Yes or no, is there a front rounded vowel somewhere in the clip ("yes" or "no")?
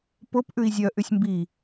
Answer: yes